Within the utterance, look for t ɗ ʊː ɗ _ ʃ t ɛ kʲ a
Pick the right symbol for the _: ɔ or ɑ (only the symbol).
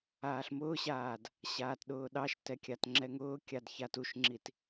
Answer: ɑ